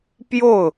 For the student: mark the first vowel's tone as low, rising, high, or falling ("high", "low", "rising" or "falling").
falling